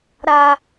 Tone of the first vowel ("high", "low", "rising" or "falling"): high